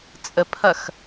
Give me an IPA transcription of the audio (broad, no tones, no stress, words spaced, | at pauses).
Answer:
t͡sʼəpʰɐx